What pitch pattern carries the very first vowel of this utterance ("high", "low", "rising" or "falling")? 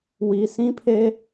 low